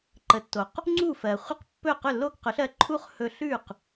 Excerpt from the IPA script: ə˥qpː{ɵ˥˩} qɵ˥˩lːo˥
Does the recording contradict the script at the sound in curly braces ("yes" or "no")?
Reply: no